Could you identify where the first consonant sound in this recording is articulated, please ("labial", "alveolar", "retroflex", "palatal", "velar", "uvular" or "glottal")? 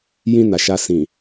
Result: palatal